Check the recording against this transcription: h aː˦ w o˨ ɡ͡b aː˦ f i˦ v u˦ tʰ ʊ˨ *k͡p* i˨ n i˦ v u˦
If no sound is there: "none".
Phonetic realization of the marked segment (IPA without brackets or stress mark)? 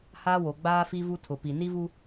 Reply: p